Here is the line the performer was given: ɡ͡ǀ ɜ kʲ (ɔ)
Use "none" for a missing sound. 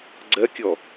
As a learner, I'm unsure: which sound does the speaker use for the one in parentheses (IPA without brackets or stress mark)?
ɔ